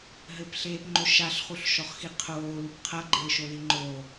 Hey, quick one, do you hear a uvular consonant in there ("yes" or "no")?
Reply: yes